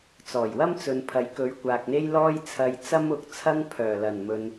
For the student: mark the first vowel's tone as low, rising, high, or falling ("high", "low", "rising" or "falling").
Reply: low